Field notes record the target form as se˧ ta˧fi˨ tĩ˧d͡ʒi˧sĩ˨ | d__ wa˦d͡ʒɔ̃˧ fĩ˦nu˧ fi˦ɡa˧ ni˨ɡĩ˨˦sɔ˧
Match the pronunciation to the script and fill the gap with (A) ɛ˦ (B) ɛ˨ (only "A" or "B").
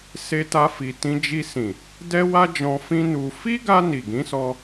A